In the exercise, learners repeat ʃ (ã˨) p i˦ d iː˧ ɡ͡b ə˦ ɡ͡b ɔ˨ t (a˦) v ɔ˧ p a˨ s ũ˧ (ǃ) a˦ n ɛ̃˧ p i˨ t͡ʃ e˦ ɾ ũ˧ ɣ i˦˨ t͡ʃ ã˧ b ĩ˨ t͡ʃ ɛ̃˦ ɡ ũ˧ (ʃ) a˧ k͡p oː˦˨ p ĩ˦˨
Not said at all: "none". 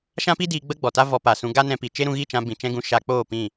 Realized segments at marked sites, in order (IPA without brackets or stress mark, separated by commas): ã˦, a˦, ɡ, ʃ